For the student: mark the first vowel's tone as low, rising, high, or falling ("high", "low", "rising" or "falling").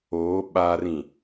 rising